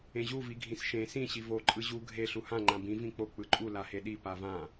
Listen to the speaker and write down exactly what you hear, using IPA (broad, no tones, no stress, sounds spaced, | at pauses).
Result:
ẽ ʑ u v i ɡʱ ĩ s ʃ ẽ s ĩ ɕ i v o ǃʼ ɯ ʑ u ɡʱ e ɬ u h ã ŋ͡ǃ ã b ĩ v ĩ k͡p o k͡p ɯ ǃʼ u l a h e ɗ i p a v ã